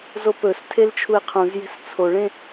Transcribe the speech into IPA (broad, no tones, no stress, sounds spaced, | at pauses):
z o p ɵ s tʰ e l t͡ʃʰ u e̯ qʰ ũ z j e̤ s t͡sʰ o ɭ ẽ